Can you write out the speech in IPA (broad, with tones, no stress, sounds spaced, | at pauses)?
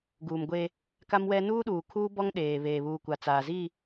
ɡ uː˨ m ɡʷ e˦ | k a˦ m w ɛ˦ n uː˦ ɗ uː˨ kʰ uː˦ b ɔ˦ ŋ ɗ eː˨ β eː˨ β uː˨ kʷ a˨ t͡s aː˨ z i˦˨